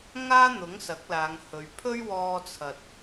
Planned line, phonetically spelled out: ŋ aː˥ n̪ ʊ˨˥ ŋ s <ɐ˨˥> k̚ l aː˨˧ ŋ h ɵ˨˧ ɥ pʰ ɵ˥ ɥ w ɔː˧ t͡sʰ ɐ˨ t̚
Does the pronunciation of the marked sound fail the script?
no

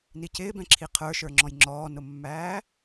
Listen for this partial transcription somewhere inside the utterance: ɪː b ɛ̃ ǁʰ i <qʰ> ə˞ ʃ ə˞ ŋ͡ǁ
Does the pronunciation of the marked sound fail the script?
no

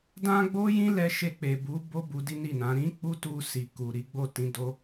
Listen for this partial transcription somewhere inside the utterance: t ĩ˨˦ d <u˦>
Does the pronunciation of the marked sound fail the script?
yes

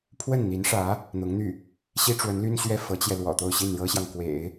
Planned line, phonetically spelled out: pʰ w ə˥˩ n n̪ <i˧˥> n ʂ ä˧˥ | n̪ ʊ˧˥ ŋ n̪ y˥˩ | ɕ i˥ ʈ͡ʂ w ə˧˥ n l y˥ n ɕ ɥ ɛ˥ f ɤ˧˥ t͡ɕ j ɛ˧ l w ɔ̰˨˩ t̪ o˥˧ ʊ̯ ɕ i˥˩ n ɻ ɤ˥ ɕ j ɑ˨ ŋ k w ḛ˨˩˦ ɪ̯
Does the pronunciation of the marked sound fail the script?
no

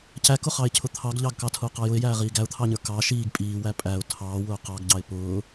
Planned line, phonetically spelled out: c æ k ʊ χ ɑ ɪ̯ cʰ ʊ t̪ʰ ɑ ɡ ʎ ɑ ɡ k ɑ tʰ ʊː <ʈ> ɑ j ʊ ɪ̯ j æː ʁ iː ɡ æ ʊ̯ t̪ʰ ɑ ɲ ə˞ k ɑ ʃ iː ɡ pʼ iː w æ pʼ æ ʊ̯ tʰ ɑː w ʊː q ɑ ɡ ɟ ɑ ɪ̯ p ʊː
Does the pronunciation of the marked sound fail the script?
yes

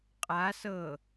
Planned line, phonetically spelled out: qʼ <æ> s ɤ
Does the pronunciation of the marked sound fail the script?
yes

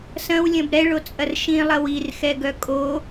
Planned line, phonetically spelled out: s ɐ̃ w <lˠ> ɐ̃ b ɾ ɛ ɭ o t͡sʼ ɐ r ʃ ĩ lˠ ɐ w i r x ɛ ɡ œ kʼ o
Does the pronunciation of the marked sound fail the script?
yes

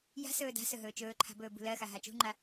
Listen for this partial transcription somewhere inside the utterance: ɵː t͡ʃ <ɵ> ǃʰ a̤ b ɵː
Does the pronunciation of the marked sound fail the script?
yes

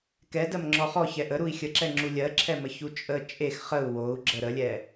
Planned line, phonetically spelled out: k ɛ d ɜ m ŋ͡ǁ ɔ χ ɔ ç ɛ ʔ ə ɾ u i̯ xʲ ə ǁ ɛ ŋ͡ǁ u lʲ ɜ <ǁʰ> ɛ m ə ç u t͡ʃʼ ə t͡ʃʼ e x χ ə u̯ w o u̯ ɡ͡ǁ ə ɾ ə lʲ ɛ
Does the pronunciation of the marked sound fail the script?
no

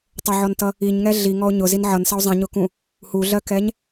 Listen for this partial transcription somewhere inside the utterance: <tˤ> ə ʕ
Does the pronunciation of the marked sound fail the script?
no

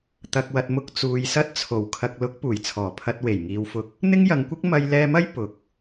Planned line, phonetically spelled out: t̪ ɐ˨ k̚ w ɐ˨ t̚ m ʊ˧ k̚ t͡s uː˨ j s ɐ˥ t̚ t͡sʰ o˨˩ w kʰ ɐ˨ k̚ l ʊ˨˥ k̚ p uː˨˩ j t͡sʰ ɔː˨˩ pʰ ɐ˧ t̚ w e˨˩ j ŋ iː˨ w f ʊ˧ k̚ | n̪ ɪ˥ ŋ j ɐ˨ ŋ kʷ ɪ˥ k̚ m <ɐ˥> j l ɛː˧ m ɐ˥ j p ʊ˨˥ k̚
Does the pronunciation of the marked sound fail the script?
yes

